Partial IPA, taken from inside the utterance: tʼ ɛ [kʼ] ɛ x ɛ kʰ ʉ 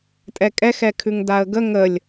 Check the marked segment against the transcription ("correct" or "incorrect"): correct